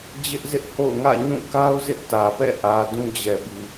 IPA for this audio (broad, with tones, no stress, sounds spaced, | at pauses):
d͡ʑ ɪ˦ ʔ z ɪ˦ ʔ h o̰˦˨ ʊ̯ ŋ ä̰˦˨ ɲ ũ˦˨ k a˦ ʊ̯ z ɪ˦ ʔ t ä˨ p ɛ̰˦˨ ʔ ä˨ d ũ˦ d͡ʑ ɛ˨ b i˨